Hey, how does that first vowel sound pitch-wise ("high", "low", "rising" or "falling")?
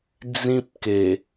high